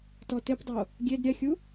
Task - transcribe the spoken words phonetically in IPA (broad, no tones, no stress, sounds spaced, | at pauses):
t ɔ t ɪ p dˤ o | ɡʲ e d ɾʲ ɛ xʲ u